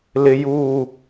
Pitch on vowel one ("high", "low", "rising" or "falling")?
high